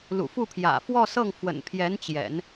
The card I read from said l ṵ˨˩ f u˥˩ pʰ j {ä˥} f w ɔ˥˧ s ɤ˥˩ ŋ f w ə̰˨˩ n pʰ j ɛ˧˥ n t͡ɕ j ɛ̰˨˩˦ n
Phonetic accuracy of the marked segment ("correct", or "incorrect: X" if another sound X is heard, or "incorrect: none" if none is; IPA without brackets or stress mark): incorrect: ä̰˨˩